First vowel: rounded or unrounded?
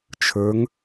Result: unrounded